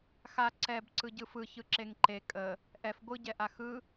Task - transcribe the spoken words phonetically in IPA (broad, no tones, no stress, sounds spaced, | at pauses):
x a ǀ ɛ b ǀ ɯ ɟ ɯ f ɯ ç ɯ ǁ e ŋ ǃ e kʼ ə | ʔ ɛ f ɡʷ ɯ ɟ ɛ ʔ a x ɯ